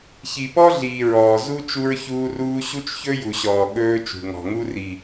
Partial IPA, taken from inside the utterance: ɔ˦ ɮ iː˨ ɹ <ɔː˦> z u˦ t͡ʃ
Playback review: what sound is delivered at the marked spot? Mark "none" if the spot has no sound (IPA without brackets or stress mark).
ɔː˨